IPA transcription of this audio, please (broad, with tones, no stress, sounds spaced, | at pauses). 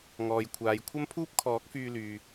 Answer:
ŋ ɔː˨ j kʷʰ aː˨˧ j kʷʰ ɐ˥ m pʰ uː˥ p̚ kʰ ɔː˨˥ k̚ f yː˧ l yː˨